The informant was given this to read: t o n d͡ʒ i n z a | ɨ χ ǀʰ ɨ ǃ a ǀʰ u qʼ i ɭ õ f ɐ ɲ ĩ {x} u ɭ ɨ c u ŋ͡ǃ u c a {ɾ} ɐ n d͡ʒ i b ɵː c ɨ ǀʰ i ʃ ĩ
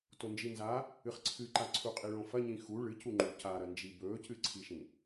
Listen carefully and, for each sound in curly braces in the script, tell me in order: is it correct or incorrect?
correct, correct

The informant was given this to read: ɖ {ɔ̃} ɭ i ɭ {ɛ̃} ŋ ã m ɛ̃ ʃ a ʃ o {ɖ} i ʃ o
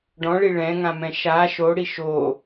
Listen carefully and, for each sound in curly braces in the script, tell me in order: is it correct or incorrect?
correct, correct, incorrect

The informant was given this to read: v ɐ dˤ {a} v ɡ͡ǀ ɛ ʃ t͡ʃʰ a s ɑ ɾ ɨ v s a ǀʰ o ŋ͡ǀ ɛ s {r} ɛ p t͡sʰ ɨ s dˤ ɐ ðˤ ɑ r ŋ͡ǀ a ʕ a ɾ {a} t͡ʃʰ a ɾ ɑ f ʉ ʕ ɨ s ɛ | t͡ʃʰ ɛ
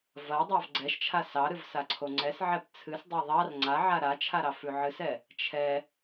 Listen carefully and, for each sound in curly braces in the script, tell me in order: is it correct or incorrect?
incorrect, incorrect, correct

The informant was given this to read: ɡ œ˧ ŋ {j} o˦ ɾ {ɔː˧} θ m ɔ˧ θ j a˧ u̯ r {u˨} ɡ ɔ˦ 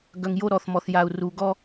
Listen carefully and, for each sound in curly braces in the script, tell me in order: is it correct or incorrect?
correct, incorrect, incorrect

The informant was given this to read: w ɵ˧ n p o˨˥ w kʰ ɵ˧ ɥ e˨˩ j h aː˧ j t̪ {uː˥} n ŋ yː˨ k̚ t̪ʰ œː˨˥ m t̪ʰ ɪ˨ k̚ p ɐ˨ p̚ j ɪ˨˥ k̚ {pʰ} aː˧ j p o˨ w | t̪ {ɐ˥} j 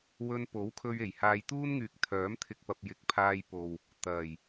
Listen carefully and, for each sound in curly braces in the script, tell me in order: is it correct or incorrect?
correct, correct, incorrect

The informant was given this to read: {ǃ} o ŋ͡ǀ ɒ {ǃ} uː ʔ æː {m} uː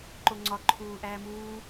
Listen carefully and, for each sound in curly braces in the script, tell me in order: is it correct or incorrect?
correct, incorrect, correct

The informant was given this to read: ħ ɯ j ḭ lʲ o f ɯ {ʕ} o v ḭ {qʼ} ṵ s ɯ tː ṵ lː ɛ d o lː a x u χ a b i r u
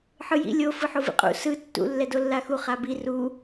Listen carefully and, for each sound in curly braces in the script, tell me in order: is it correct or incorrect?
incorrect, correct

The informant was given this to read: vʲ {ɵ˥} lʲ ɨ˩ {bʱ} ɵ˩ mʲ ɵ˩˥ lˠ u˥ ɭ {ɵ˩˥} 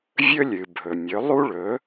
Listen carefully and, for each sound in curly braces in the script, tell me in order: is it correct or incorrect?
correct, correct, correct

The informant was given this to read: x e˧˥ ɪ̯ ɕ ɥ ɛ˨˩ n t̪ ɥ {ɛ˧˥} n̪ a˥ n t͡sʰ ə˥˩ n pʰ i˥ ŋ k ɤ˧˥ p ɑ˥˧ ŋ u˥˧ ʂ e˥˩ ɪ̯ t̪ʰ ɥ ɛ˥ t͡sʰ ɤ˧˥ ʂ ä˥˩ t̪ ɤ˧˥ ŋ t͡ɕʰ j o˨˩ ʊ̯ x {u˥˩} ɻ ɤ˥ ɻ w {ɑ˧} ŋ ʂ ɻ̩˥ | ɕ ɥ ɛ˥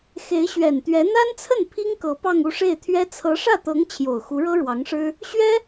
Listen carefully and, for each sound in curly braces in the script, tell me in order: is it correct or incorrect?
correct, incorrect, incorrect

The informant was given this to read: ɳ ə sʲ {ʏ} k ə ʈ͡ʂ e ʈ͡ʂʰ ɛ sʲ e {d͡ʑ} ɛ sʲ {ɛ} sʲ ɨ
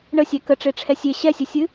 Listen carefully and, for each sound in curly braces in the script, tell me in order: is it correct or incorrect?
incorrect, incorrect, incorrect

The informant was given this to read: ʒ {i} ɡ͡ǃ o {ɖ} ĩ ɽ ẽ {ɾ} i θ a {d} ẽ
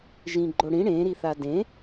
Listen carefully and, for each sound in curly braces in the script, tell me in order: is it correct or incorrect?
incorrect, incorrect, correct, correct

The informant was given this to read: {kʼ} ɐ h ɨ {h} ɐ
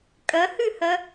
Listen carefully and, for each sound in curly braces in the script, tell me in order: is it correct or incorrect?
correct, correct

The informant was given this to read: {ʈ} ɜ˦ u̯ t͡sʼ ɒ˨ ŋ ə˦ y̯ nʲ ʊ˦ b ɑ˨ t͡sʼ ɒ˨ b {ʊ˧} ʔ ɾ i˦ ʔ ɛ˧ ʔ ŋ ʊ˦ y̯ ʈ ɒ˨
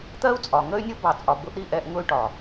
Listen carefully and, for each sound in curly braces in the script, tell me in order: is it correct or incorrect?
incorrect, correct

